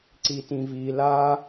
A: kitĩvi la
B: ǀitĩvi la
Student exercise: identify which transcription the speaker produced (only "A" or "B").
B